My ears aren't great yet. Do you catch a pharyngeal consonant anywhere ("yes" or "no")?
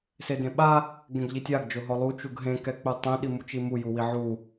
yes